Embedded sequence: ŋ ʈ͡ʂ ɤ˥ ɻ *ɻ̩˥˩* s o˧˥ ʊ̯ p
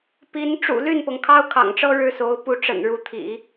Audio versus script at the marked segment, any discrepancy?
no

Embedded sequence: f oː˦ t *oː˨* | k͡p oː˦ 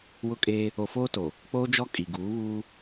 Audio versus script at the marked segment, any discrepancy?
yes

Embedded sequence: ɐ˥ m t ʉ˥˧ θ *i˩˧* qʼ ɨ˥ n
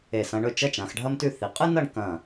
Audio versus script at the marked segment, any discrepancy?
no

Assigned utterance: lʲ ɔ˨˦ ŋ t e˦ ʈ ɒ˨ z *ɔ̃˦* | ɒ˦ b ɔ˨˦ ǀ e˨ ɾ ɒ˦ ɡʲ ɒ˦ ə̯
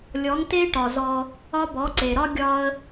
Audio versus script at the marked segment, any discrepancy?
yes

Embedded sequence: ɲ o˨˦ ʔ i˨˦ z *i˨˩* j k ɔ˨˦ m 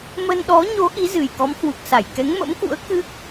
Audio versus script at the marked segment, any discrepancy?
yes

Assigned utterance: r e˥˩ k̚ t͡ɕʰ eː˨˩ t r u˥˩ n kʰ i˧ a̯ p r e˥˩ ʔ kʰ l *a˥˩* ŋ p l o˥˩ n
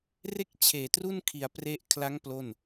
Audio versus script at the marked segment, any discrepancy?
yes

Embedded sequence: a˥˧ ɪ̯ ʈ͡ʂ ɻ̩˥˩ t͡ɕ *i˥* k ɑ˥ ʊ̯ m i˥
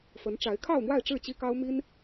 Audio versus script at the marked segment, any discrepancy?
no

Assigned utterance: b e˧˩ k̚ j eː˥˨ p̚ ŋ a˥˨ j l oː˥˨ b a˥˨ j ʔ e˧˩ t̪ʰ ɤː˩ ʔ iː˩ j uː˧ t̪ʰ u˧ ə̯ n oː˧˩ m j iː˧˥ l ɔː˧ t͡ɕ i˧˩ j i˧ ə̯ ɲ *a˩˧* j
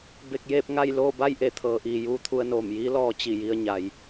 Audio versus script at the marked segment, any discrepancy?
no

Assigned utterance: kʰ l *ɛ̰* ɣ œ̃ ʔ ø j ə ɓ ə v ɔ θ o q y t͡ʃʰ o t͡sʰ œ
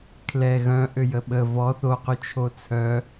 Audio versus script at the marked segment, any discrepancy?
yes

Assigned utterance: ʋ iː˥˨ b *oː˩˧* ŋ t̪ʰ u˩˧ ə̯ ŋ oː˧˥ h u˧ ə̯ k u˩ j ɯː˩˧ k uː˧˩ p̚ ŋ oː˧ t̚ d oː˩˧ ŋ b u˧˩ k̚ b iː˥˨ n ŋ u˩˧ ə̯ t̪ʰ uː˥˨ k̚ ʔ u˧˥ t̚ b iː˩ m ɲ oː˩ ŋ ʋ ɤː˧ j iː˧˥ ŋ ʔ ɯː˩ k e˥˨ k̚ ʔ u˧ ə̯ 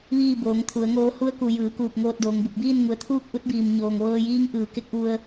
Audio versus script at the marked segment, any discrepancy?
no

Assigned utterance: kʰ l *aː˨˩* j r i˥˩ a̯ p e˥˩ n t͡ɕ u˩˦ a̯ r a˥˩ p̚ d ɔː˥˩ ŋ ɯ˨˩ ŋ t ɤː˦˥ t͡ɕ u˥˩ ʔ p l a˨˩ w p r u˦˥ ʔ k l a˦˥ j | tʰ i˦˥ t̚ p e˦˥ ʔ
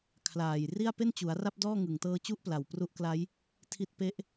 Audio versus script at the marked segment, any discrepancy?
no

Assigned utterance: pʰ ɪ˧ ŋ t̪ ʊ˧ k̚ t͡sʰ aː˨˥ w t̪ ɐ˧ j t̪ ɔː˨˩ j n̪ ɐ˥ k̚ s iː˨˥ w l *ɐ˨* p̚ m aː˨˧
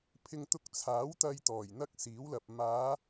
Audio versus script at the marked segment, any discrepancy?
no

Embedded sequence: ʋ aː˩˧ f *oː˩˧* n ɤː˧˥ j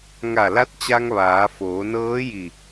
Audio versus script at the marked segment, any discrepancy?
no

